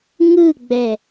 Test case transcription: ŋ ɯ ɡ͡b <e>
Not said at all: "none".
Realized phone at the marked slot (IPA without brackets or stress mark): ɛ